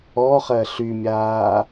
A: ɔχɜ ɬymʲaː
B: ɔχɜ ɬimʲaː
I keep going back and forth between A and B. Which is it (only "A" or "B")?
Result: A